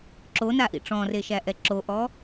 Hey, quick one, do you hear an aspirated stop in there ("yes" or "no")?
no